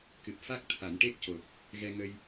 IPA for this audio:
k ɨ˨˩ p̚ f a˦˥ k̚ t̪ʰ a˨˩˨ n ʈ e˦˥ k̚ c o˨˩ p̚ | ɣ ɛ˧ ŋ ə˧ j

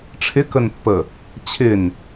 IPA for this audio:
ʈ͡ʂʰ ɪ k ə n pː ə | t͡ɕʰ ɪ n

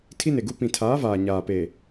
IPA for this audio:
tʰ i˦ n e˨ ɡ u˦ p ĩ˨ tʰ aː˨˦ v aː˨ ɲ aː˨ p e˨

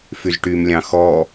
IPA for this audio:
f y z ʈ y m lʲ ɑ̃ x ɔ

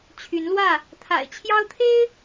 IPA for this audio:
t͡ɕʰ y˨˦ n l w ä˥˨ | t̪ʰ a̰˨˩ ɪ̯ t͡ɕʰ j ɑ˦ ʊ̯ t̪ʰ e˦ ɪ̯

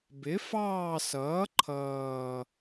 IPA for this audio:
b ɪ˩˥ f ɑː˦˨ s ʌː˩˥ ǃʰ ʌː˨˩

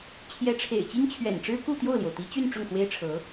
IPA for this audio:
t͡ɕʰ j ɛ˧˥ ʈ͡ʂʰ ḛ˨˩ ɪ̯ t͡ɕ i˥ ŋ t͡ɕʰ ɥ ɛ̰˨˩ n ʈ͡ʂ ɻ̩˥ k u˥˧ t̪ j o˥˩ ʊ̯ l j o˩ ʊ̯ t̪ i˧˥ t͡ɕ y˥˧ n ʈ͡ʂ ʊ˥˩ ŋ x w e˥ ɪ̯ ʈ͡ʂʰ ɤ˧˥

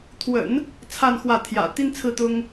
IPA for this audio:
t̪ʰ w ə̰˨˩˦ n | t͡sʰ a˥˧ n x w ä˥˩ t̪ʰ j ä̰˨˩ t̪ i˥ n t͡sʰ ɹ̩˥˩ t̪ ʊ˥ ŋ

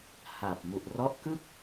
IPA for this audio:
h a˨˩ p̚ m u˨˩ ʔ r ɔ˦˥ ʔ k ɯ˥˩ k̚

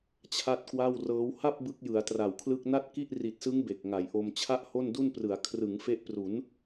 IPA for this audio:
t͡ɕʰ a˥˩ t̚ k w a˥˩ w r ɤː˦˥ w h a˥˩ p̚ b ɯ˦˥ k̚ j ɯ˩˦ a̯ t r a˨˩ w kʰ l ɯ˥˩ k̚ n a˥˩ t̚ k i˥˩ ʔ r i˨˩ t̚ s ɯ˦˥ ŋ b e˨˩ k̚ ŋ a˩˦ j ʔ o˧ m t͡ɕʰ a˥˩ ʔ h o˥˩ n d u˥˩ n p r ɯ˩˦ a̯ kʰ r ɯ˩˦ ŋ f e˦˥ ʔ p r u˩˦ n

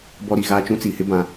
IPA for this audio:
b ɔ˦ ɾ i˨ ɣ a˦ t͡ʃ ũ˦ t͡s i˨ h ɪ˦ b ã˨

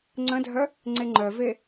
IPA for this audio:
ŋ͡ǀ ə̃ dʱ œ | ŋ͡ǀ e ŋ͡ǃ œ v e

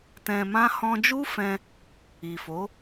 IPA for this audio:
t ɛ̃˧ m ã˦ h ɔ̃˧ d͡ʒ u˦ f ɛ̃˧ | i˨ f o˨˦

